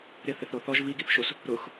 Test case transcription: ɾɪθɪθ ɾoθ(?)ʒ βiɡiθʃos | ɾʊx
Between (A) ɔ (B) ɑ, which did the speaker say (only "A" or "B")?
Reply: A